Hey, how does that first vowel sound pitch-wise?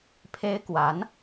high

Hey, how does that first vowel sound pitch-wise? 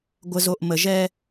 low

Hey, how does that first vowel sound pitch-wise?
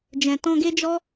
low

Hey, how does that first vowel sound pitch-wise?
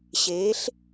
rising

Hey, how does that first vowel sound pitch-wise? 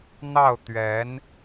falling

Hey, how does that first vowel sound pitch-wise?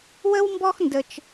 high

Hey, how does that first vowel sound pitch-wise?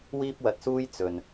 high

